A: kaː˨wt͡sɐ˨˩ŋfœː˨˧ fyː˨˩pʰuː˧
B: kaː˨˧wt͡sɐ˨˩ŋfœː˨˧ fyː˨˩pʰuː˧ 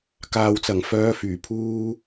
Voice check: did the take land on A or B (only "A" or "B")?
A